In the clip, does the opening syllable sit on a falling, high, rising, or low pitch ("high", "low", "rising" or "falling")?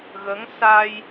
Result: rising